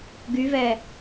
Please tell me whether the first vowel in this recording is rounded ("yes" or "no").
yes